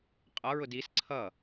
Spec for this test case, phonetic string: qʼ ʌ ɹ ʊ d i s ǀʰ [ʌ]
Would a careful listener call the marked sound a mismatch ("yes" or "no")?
no